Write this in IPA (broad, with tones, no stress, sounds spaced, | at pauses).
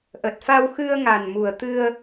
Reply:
ʔ ə˨˩ t̚ f a˧ w x ɨ˧ ə̯ ŋ a˨˩ n m u˨˩ ə̯ t̪ ɨ˧ ə̯